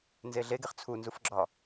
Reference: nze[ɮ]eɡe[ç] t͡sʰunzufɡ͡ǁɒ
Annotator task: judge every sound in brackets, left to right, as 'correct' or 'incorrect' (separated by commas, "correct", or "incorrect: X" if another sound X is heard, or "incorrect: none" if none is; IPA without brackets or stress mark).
correct, incorrect: χ